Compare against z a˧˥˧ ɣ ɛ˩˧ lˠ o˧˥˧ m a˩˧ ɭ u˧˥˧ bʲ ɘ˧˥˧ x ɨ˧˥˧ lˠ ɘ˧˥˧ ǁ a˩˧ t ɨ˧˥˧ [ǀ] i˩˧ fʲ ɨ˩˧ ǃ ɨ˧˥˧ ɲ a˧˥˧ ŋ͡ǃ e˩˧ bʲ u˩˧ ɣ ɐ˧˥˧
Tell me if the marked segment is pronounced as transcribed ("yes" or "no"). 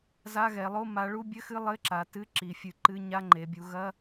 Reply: no